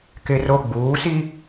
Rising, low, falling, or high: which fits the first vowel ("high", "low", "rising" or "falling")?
high